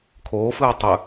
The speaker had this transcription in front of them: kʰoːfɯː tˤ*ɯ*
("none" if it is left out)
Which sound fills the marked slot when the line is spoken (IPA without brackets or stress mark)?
ɯ